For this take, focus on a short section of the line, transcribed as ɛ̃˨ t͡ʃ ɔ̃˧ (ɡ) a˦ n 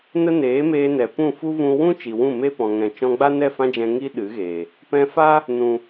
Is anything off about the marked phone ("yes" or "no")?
yes